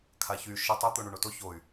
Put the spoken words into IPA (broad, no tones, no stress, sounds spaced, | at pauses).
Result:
kʰ a ç y ʃ ə tˤ u t̪ o ɳ u ɳ o t o ç o y̯